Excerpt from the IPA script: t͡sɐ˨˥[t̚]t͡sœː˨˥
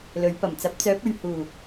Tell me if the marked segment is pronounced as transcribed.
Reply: no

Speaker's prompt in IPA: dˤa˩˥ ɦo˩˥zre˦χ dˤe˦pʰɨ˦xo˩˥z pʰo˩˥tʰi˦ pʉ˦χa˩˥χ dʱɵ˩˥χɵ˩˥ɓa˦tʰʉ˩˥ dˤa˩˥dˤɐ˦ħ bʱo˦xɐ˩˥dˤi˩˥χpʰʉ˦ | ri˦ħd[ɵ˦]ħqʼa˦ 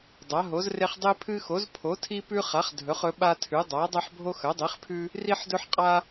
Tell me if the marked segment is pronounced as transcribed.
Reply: yes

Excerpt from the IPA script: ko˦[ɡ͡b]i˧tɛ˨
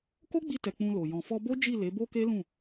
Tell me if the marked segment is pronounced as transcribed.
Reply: yes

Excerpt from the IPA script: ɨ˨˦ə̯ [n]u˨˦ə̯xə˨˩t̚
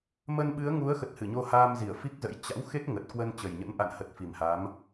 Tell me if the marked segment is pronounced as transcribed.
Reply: no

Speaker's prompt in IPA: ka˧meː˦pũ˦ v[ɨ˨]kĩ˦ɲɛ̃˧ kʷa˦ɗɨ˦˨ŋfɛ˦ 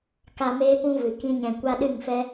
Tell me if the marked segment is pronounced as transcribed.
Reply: yes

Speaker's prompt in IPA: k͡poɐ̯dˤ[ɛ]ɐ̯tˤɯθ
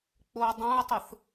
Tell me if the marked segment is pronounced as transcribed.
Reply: no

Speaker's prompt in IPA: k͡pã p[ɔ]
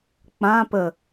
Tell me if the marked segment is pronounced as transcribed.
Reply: no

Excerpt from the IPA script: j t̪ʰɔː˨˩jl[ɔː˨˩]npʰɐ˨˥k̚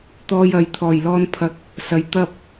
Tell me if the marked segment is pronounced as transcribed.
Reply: no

